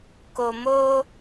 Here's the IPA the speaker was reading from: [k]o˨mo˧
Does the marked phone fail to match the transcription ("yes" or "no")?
no